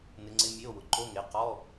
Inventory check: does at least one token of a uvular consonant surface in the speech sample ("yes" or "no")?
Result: yes